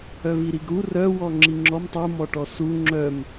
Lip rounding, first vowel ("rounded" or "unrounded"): rounded